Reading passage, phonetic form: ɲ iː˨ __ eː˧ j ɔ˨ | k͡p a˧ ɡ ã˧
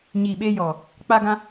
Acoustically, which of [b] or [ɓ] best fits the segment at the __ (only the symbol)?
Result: ɓ